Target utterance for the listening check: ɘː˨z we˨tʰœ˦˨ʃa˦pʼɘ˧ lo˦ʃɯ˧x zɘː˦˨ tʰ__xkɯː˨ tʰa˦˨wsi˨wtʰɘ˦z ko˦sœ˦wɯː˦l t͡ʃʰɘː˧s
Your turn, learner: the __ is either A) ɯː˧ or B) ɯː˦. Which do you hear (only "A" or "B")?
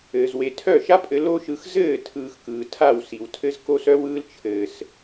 A